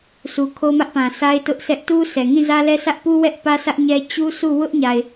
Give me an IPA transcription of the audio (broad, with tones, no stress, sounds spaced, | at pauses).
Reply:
sʰ u˨ kʰ o˦ m ä˦ ʔ p ã˨ sʰ a˦ ɪ̯ t ʊ˦ ʔ sʰ ɛ˦ ʔ t u˦ sʰ ɛ˨ ŋ ĩ˦˨ z ä˦ l ɛ˦ sʰ ä˦ ʔ p u˦ w ɛ˦ ʔ p ä˦ s ä˦ ʔ ɲ ɛ˦ t͡ɕ u˦ sʰ u˦˨ w ʊ˦ ʔ ɲ a˨ ɪ̯